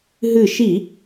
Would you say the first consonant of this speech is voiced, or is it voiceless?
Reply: voiced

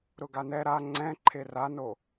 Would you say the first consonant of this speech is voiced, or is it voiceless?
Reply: voiced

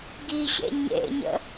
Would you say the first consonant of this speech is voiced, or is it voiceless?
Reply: voiced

